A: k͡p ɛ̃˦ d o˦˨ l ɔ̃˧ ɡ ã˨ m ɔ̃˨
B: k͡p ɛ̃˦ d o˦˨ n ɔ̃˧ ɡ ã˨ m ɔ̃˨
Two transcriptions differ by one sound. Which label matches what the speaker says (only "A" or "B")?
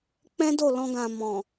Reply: A